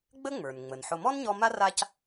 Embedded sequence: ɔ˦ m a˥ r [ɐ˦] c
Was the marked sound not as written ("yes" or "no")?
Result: yes